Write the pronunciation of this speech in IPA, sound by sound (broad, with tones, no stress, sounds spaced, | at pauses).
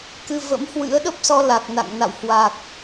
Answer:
k ɨ˧ v ə̰˧˥ m h w ɨ̰˧˥ ə̯ ɗ ə˦˥ p̚ s ɔ˧ l a˨˩ k̚ n a̰˧˨ ŋ n a̰˧˨ w h w a˨˩ k̚